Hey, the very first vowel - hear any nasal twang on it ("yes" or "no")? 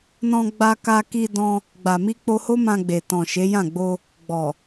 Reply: yes